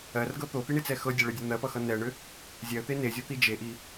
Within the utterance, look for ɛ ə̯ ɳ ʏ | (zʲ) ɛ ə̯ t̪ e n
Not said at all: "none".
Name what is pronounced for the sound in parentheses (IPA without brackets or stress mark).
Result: zʲ